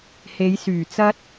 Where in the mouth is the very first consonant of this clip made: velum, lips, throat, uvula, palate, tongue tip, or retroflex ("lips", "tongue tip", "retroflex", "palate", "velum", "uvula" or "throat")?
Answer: throat